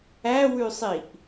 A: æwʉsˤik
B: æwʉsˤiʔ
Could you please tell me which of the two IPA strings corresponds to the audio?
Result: B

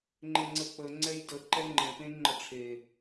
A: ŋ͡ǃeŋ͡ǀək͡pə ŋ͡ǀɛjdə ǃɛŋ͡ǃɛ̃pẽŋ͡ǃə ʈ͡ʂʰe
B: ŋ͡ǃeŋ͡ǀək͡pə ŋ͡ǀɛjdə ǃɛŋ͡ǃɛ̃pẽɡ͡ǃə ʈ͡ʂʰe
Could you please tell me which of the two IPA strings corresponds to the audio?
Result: A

